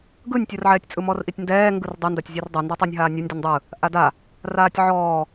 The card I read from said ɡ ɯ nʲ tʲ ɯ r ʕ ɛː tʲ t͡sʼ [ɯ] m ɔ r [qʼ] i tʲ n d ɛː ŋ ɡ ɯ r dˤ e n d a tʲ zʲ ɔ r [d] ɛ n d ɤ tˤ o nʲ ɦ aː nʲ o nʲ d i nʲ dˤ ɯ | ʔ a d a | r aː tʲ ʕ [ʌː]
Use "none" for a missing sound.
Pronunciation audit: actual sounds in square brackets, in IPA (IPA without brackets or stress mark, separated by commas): ɯ, ʔ, dˤ, ɔː